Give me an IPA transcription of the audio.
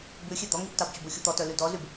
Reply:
bʉxʲe d̪ɔŋib tɑbt͡ɕubu xʲut̪ɔtœ lydɔzyb

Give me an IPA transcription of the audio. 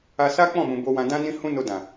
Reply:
a˧ sa˦k͡pɔ̃˦˨mũ˨ bo˧wã˧ dã˦ nĩ˦ hũ˦no˧ dã˨

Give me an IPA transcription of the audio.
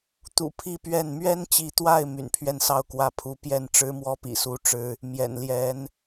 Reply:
t̪ṵ˨˩ pʰi˥˧pɥɛ˥˩n mɥɛ˥nt͡ɕi˧˥t̪wa˥˩ɪ̯ my̰˨˩npʰɥɛ˥˧nsɑ˥˩ʊ̯ kwä˧˥pʰu˧˥ pjɛ˥˩n ʈ͡ʂɻ̩˥mwɔ˥pḭ˨˩su˧˥ ʈ͡ʂɻ̩˥ | mjɛ̰˨˩nljɛ˧˥n

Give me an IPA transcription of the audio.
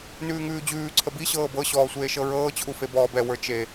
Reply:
nʉːŋʉːd͡ʑʉː ǀʰəbi ɕɤːbɤ ɕɔːsʷeːʃɤɹɤː t͡ɕʰufebɔːbɛ wə˞t͡ʃe

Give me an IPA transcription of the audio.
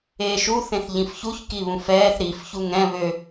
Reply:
eːʃu θẽθʎĩfçuç kiβũfɛːθ ɾif çuŋɛ̃ βø

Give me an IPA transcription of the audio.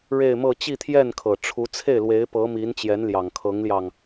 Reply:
ɻe˥˧ɪ̯mɤ˥˧ t͡ɕi˥˧t̪ʰjɛ˥˩nkʰɤ˨˩ʈ͡ʂʰu˧˥ t͡sʰe˥˩ɪ̯lwe˧˥ɪ̯pɤ˧˥ mi˧˥n t͡ɕjɛ˧˥nljɑ˨˩ŋkʰɤ˧˥ŋljɑ˧ŋ

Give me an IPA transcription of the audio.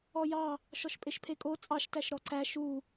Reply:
ɔjɑ | ʃɔʃpʼeʃpʰekʼo t͡sʼɑʃtæʃ ɾɔǀæ ʃu

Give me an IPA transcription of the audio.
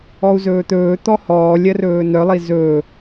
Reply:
ɔu̯zɵːt̪ɵː t̪ɔhɔː lʲɜrɵːnœ lˠizɵː

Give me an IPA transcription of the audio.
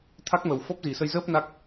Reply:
t̪ʰa˦˥k̚mə˨˩w fɔ˦˥p̚zi˨˩sə˧jzəː˦˥p̚ na˦˥k̚

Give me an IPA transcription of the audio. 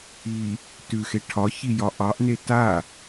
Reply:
i | tʉxe ʈʰɒçijɒ ʔɑʔne ta

